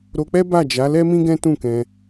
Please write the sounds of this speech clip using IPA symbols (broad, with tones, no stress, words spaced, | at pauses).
ɾo˧k͡pɛ˦ba˦˨d͡ʒa˨˦ lɛ˦mĩ˦ ɡɛ̃˦tũ˦˨kɛ̃˧